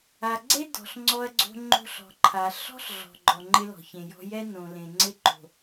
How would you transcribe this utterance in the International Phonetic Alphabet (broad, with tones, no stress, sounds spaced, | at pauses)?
a˨ ɡ͡ǀ e˦ d ɔ̤˨ ɬ ŋ͡ǀ ɔ˦ ɐ̯ ɡ͡ǀ o̤˦ ŋ͡ǃ o̤˦ ɬ ɔ̤˨ ǃʰ a˨ ɬ ɔ̤˦ ɬ ɮ ɔ̤˨ ɡ͡ǃ ɔ˨ ŋ͡ǃ ɪ˦ l ɔ̤˨ ç ẽ˨ j ɔ̤˦ j ɛ˦ n õ˨ l ẽ˨ ŋ͡ǀ ɪ˦ ǃ o̤˨